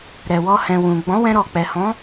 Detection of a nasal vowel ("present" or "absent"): present